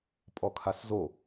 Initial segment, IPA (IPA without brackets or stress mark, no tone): pʼ